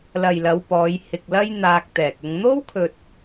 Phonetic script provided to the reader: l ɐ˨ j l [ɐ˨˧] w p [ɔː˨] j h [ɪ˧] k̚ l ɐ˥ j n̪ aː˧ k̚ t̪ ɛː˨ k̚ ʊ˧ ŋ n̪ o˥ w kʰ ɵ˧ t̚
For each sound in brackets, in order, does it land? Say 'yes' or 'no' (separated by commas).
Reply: yes, no, yes